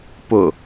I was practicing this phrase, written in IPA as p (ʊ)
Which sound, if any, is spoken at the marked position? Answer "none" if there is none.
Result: ʊ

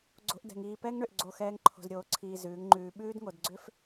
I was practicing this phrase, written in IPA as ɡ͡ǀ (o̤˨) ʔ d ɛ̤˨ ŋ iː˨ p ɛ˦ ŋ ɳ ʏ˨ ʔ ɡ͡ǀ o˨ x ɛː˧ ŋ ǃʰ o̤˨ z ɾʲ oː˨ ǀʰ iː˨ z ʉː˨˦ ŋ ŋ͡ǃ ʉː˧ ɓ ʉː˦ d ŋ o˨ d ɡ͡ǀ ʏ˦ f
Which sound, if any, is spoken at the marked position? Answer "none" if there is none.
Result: o̤˧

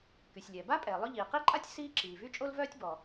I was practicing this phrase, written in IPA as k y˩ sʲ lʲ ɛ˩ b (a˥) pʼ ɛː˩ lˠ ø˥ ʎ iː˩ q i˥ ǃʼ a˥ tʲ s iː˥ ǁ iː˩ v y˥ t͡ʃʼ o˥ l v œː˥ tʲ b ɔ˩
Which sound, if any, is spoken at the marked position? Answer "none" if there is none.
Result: a˥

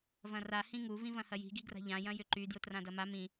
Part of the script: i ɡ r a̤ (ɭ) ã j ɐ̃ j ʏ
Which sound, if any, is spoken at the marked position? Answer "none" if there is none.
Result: ʎ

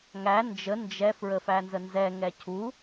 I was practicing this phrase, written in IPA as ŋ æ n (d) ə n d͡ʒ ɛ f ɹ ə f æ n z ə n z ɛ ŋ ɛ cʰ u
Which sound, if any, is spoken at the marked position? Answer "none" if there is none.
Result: d͡ʒ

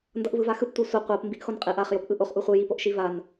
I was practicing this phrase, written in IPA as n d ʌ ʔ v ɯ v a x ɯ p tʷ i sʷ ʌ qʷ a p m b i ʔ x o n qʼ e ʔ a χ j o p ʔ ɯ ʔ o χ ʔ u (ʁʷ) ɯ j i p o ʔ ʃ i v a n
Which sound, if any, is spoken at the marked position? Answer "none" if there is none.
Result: χʷ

